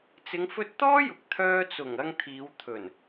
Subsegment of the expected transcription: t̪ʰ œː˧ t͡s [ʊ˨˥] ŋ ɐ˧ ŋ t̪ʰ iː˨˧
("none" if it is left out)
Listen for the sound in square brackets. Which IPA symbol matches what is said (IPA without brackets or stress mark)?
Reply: ʊ˨˩